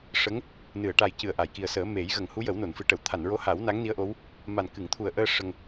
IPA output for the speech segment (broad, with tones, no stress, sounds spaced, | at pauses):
ʂ ə˧˥ ŋ | n ɨ˨˩˨ ə̯ ʈ a˨˩ j c ɨ˨˩ ə̯ ʔ a˨˩˨ j k i˨˩ ə̯ s əː˨˩˦ m e˨˩˦ j ɣ ə˨˩˨ ŋ h u˧˥ j ə˨˩˦ w n o˨˩˨ n f ɨ˨˩˨ ʈ ə˨˩˨ w t̪ʰ a˨˩˨ n ɹ o˧˥ h a˨˩˦ w n a˧˥ ŋ n i˧˥ ə̯ ʔ o˧˥ w | m a˨˩ n k ɨ˨˩˨ ŋ t̪ʰ u˨˩ ə̯ ʔ əː˧ ʂ ə˧ ŋ